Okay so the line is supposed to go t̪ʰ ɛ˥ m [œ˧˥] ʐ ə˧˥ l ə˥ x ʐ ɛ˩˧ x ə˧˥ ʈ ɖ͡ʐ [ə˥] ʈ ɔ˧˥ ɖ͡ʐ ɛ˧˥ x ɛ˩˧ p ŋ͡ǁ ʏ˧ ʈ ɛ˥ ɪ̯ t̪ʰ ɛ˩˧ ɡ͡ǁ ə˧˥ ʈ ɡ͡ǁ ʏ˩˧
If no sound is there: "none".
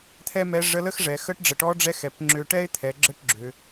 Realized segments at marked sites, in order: ɛ˧˥, ə˩

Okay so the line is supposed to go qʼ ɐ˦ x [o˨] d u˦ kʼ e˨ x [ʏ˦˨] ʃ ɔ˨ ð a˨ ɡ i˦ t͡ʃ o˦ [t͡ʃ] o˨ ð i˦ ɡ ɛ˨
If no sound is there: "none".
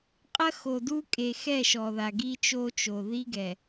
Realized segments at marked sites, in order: o˨, ɛ˦˨, t͡ʃ

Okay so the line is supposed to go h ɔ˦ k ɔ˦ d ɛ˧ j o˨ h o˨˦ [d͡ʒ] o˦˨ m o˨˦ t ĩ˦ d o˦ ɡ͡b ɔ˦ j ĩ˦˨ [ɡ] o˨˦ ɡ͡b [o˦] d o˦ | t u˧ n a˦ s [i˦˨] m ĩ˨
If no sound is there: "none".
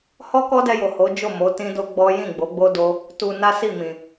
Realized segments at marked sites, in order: d͡ʒ, ɡ͡b, o˦, i˦˨

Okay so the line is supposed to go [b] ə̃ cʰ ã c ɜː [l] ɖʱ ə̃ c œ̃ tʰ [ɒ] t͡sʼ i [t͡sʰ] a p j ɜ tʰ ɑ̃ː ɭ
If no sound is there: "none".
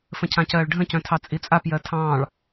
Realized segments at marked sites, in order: f, ɭ, ɑ, t͡sʼ

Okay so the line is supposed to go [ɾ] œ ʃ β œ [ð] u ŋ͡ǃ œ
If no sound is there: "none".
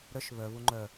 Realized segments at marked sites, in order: ɾ, β

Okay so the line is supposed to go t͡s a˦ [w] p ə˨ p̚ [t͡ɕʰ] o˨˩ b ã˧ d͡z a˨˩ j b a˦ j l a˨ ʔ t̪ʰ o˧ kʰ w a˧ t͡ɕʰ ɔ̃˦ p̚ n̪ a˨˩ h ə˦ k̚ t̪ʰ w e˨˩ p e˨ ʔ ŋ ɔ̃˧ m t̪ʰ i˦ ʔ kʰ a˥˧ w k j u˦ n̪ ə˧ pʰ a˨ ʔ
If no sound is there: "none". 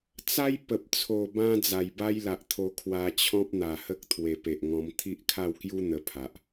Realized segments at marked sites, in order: j, t͡sʰ

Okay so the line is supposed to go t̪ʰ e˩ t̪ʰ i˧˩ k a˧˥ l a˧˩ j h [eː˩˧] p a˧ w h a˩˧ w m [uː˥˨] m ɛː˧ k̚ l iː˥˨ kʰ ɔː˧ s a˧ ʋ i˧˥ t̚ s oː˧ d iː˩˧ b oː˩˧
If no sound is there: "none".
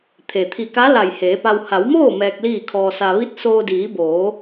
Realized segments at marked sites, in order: eː˩˧, oː˥˨

